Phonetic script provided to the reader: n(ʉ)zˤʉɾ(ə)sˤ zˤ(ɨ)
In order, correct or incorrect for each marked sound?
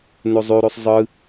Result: correct, incorrect: ʉ, correct

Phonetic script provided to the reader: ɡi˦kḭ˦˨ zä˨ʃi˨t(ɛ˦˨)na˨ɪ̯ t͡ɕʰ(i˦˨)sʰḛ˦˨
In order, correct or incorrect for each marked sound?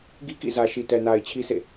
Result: incorrect: ɛ˨, incorrect: i˦

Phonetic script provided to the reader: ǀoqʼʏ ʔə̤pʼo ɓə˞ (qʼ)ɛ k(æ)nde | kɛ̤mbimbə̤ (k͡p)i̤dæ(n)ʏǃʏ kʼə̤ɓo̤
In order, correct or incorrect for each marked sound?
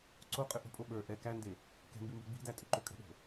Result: incorrect: ʔ, correct, incorrect: ɡ͡b, incorrect: tʼ

